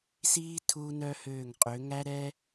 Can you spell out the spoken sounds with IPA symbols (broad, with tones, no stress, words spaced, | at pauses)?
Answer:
siː˥ tʰuː˥nœ˥høː˦˨ŋ qʼø˨˦ŋæ˥ɾɛ˥